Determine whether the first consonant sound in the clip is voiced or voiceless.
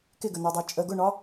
voiceless